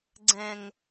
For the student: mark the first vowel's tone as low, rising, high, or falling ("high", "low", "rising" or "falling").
low